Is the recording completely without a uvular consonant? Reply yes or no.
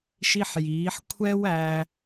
yes